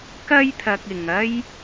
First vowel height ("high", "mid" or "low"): low